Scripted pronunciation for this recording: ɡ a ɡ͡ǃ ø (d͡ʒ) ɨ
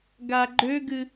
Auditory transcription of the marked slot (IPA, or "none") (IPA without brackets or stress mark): ɡ